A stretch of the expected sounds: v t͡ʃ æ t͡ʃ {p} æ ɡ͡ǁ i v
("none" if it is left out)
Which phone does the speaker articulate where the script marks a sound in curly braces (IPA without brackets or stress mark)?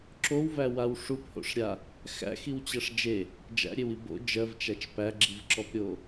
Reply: p